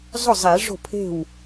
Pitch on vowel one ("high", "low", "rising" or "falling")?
falling